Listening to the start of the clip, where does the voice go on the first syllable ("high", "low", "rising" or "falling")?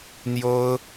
high